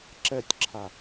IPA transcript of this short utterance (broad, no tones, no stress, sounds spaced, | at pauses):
ǁ ɛ tʲ ǁʰ a